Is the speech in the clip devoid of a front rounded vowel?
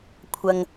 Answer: yes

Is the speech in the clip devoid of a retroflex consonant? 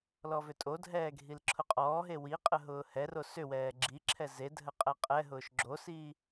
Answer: yes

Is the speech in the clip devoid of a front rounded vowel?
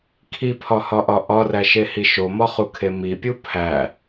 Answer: yes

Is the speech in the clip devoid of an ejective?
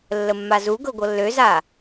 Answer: yes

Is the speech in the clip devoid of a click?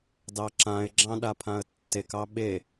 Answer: no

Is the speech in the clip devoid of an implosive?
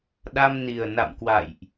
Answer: no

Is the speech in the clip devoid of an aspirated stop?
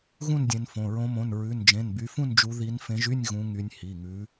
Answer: yes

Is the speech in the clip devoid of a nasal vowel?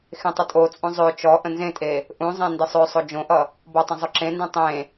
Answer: no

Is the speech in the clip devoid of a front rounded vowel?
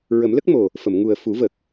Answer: yes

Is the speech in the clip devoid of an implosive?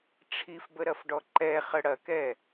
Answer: yes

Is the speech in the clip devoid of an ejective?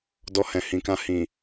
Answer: yes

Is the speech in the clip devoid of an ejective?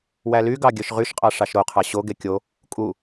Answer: no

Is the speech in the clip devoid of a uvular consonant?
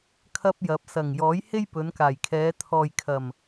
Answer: yes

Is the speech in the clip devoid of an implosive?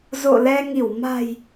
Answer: yes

